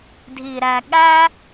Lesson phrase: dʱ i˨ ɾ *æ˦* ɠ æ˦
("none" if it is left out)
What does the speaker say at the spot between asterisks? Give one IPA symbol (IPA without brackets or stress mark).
æ˨